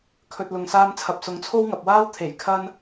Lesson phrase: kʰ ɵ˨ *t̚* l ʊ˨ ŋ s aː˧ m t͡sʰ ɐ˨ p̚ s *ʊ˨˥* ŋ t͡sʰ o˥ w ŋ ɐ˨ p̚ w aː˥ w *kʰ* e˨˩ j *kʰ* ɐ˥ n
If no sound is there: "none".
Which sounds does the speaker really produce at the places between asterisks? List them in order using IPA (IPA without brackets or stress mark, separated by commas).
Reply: t̚, ʊ˨˥, t̪ʰ, kʰ